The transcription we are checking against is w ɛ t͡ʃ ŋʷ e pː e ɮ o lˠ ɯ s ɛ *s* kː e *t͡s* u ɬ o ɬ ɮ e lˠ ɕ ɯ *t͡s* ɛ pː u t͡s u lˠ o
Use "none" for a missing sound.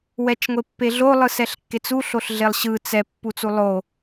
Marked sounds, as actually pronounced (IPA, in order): ɬ, t͡s, t͡s

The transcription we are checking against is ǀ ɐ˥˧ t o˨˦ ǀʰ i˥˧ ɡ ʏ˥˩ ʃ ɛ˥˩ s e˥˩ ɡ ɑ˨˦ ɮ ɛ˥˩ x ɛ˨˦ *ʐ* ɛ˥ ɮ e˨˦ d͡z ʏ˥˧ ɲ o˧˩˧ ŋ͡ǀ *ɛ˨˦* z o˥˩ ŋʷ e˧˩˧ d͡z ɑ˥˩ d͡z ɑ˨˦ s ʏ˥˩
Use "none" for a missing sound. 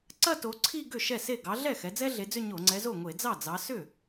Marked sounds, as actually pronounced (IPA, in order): d͡z, ɛ˨˦

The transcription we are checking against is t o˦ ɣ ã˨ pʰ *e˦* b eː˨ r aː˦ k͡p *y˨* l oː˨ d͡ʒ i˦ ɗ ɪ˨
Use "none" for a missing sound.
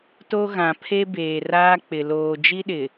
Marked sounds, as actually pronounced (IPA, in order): e˦, ɪ˨

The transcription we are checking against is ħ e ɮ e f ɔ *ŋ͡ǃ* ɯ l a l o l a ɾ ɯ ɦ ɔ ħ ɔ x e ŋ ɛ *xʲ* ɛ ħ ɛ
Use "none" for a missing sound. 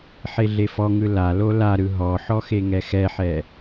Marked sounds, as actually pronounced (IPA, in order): ŋ, x

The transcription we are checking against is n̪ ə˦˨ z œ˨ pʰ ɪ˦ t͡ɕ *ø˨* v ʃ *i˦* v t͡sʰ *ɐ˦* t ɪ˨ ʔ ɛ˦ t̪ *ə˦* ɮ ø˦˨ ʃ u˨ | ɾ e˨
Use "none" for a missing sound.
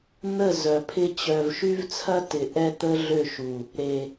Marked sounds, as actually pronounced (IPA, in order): œ˨, y˦, ɐ˦, ə˦

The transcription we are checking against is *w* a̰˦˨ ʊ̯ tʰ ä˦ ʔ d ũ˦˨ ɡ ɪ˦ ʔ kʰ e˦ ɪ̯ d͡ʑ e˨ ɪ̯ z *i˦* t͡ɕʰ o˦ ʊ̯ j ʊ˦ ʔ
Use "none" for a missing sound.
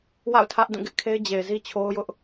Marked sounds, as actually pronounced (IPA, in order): w, i˦

